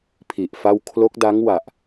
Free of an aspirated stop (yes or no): no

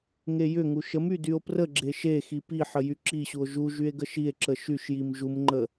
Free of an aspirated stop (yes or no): yes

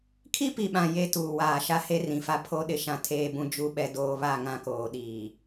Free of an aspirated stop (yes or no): no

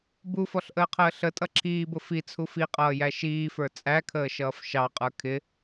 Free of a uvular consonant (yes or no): no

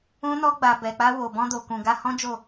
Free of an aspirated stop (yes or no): yes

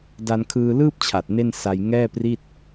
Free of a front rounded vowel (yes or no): yes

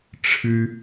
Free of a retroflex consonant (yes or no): no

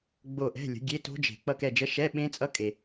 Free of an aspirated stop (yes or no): yes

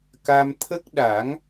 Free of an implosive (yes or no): no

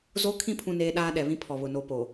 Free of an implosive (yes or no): no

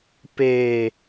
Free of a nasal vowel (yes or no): yes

